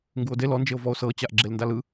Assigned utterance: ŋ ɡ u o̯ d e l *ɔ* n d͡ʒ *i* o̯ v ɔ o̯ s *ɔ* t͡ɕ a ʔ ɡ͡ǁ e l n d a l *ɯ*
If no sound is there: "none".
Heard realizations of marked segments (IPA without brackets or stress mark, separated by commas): ɔ, e, ɤ, ɯ